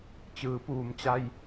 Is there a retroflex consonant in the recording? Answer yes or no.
no